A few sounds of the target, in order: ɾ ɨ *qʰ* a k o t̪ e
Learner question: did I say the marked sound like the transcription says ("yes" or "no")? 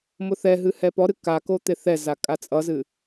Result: no